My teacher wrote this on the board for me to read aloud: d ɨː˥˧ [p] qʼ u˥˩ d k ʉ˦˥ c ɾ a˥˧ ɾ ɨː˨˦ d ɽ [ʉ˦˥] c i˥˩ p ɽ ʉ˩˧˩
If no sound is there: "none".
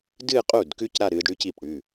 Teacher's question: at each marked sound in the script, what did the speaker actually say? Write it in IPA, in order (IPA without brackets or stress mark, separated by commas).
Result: none, ʉ˦˥